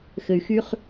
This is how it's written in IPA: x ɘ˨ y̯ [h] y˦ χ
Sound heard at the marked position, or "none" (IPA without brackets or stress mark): x